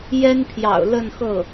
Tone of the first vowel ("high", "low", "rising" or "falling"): high